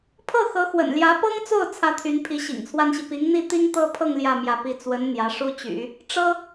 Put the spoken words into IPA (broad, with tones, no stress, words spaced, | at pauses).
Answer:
pʰɤ˥˩ xɤ˧˥xwə̰˨˩nljä˧˥ pɤ˥ŋt͡so˥˩ʊ̯ t͡sʰä˥t̪ʰy˧˥npʰi˧˥ ɕḭ˨˩ŋt͡sʰwa˥nɕi˨ pi˧˥ŋn̪i˥˩ t̪i˥ŋt̪ɤ˥pʰɤ˥˧ŋ ljä˥˧ mjä˥˩pi˥ t͡swə˧˥n n̪jä˧˥ʂu˥t͡ɕy̰˨˩˦ | ʈ͡ʂɤ˥